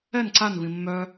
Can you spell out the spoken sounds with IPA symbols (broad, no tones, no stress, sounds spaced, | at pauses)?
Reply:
ɛ n ǀ a n v ĩ mː œ